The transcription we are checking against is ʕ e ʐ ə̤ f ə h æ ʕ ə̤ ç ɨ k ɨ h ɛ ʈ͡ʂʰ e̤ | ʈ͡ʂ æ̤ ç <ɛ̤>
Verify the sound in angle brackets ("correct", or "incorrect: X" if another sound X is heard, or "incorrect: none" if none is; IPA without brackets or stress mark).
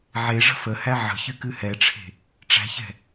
correct